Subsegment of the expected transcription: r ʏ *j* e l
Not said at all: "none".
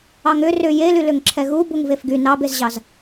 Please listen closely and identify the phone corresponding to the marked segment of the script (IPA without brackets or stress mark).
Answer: j